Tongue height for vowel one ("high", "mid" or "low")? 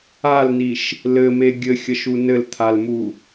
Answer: low